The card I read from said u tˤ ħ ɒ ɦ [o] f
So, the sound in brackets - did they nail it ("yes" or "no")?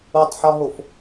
yes